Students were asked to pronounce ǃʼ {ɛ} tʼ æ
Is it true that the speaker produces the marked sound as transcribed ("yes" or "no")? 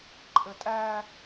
no